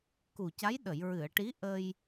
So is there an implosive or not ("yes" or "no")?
yes